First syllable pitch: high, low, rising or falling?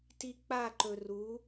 high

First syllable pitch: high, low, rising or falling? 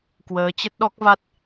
rising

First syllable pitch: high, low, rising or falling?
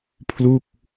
falling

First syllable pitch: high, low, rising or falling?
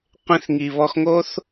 high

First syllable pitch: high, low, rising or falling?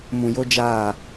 low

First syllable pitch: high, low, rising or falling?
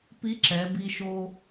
rising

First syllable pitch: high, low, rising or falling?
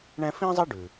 high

